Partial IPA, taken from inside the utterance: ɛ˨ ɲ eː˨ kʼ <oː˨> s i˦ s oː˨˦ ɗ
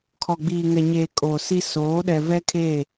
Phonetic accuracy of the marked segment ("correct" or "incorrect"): correct